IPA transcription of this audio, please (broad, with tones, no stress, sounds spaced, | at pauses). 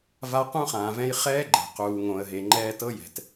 v a˦ q ũ˦ χ ãː˨ v ɛ̃˦ j χ ɛː˦ ɡ͡ǃ ɛ̤˨ q uː˨ ŋ õ˨ ə̯ ɦ e˨ ŋ͡ǃ ɛː˦ t ɤ˦ j ɛ̤˨ t